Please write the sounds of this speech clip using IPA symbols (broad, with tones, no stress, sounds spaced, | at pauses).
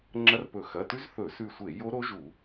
ŋ͡ǁ ɐ˦˥ r p ɵ˧˩˧ x ɐ˩˧˩ t ʉ˦˥ z θ ɵ˧˩˧ s ʉ˧˩ sʷ e˧˩˧ j o˦˥ ɾ o˦˥ ʒ u˧˩˧